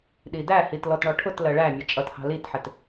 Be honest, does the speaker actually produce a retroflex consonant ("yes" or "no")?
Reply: yes